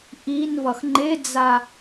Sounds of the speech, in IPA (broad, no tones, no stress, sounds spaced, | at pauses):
ʔ i n v ʌ x ŋ͡ǃ e d͡z a